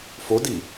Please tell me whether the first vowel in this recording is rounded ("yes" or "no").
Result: yes